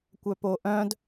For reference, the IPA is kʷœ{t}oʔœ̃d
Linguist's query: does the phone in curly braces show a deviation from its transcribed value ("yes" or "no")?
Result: yes